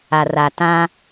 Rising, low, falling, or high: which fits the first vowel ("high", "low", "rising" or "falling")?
low